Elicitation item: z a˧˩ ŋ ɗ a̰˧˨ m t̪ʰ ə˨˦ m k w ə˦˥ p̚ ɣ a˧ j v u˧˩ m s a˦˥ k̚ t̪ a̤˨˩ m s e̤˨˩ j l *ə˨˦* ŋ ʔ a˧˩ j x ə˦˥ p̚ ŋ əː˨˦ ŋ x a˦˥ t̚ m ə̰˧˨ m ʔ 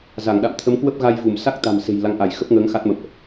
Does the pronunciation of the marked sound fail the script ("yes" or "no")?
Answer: yes